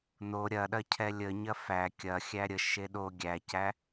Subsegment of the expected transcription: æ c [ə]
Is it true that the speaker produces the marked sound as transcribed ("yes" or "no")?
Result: no